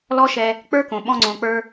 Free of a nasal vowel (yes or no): no